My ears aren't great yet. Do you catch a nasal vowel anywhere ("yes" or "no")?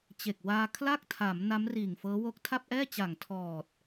no